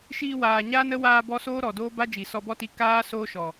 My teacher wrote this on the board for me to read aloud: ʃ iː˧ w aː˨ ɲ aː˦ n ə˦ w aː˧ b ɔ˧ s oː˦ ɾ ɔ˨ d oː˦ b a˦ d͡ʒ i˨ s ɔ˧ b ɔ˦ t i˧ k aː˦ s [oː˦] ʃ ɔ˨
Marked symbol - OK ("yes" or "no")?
yes